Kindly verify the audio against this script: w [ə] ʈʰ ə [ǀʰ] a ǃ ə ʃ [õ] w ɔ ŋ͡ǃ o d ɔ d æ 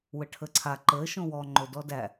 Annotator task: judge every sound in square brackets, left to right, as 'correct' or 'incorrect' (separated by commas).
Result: correct, correct, correct